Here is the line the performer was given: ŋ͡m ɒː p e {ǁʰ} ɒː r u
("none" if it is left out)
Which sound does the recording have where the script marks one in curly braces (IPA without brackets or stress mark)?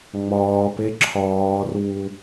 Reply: ǁʰ